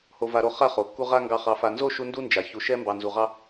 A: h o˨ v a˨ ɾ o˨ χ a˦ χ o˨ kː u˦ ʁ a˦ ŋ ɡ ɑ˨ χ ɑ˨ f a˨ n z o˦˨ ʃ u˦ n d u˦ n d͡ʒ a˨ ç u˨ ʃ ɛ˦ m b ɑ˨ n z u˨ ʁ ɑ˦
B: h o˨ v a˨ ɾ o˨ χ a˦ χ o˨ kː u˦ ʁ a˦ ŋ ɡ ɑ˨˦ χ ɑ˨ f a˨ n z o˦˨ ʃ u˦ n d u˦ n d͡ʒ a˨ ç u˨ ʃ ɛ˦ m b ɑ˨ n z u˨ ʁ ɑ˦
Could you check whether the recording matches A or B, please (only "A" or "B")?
A